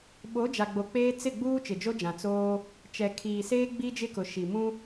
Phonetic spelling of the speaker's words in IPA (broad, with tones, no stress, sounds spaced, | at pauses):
ɓ o˨˦ d͡ʒ a˨ ɡ͡b o˨ k͡p eː˦ t͡s ɪ˦˨ ɡ͡b uː˦ t͡ʃ ɪ˨ d͡ʒ o˦ d͡ʒ ã˨ t͡s oː˦ | t͡ʃ ɛ˨ kʰ iː˨ s eː˦ ɡ͡b i˦ d͡ʒ ɪ˦ k ʊ˨ ʃ i˨ m ũ˦